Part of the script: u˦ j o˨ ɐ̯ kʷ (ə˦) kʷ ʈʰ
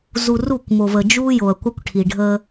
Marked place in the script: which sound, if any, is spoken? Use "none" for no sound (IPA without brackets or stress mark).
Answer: a˦